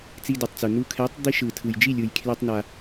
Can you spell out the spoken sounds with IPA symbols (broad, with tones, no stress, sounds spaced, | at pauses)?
t͡s i˧ d e˨ tˤ t͡s u˨ n u˧ kʰ ɛ˨˦ tˤ d̪ i˧ ʃ ɯ˨ tʰ ɯ˨ j d͡ʒ i˦˨ lʲ ɯ˨ j kʰ l ɛ˧ tˤ n a˧